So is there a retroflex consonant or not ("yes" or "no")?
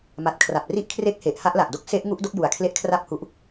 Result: no